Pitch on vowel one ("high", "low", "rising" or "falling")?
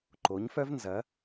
rising